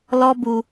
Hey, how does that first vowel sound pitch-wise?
high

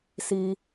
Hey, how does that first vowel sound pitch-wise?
high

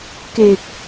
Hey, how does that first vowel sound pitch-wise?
low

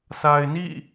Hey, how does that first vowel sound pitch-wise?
low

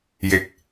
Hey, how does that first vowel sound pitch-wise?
falling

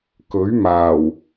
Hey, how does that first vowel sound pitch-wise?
rising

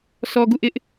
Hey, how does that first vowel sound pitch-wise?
low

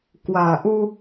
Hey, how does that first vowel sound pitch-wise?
low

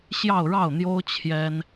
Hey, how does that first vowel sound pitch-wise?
falling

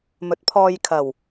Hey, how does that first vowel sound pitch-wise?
rising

